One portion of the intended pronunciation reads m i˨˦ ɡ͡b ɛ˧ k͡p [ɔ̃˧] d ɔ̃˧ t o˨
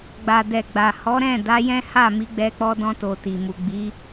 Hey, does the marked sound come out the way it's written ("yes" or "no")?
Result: no